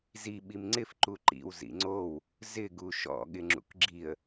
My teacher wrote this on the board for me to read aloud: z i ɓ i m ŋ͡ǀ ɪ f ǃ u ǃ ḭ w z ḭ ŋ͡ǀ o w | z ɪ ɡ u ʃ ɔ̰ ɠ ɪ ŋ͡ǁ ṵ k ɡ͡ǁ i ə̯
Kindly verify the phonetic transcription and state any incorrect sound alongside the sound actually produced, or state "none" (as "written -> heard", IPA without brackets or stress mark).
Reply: none